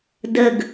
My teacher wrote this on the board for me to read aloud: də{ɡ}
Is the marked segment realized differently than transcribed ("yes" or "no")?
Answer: no